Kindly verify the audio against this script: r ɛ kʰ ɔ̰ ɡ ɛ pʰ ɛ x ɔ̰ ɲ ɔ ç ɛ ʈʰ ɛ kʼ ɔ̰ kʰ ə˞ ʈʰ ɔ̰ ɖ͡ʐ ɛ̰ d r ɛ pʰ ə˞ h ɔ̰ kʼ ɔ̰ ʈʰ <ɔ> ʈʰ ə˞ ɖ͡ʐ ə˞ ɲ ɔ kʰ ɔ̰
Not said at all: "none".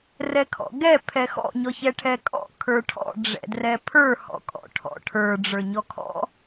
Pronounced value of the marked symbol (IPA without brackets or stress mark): ɔ̰